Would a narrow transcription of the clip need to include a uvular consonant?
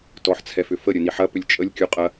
yes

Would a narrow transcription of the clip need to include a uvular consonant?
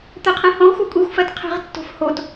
yes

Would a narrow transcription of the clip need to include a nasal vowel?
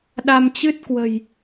no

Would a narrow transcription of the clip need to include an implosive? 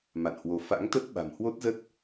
yes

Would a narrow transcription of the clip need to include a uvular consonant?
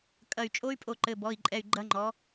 no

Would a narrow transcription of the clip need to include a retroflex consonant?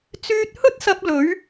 no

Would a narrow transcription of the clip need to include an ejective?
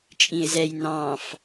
yes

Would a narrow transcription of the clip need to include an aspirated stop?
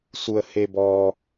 no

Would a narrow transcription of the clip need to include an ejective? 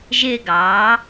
no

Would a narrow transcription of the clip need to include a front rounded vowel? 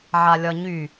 yes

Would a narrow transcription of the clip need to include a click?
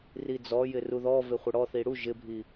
no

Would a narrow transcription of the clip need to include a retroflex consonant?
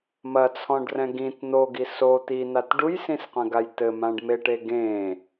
yes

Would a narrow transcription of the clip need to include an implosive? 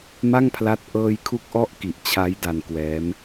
no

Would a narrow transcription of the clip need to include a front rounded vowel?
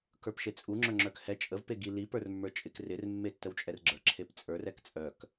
yes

